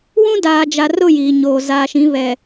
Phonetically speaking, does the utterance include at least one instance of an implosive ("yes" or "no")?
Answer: no